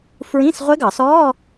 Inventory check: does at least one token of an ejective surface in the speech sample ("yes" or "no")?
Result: no